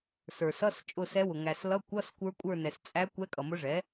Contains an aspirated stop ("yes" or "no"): no